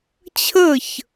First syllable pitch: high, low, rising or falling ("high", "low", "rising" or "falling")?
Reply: falling